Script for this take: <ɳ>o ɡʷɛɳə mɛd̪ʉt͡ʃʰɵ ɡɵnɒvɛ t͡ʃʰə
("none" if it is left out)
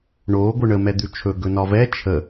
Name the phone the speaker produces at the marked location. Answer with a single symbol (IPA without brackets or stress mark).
ɳ